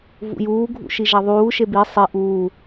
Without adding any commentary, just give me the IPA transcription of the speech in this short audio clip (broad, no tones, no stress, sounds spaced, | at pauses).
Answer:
v ṵ j uː ɡʱ ṵ ʃ i ʒ a ðˤ uː ʃ e b i sˤ i ʔ uː